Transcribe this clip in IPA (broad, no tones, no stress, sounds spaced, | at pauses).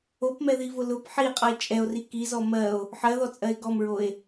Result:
o p m ɛ ð i v ʊ l ʊ p ħ i e̯ qʼ ʌ e̯ t͡ʃʼ ɛ o̯ r i k i z ɔ m ɜ o̯ | ħ ɜ ð ɔ t͡sʼ ɜ e̯ ɡ ɔ m ɹ o e̯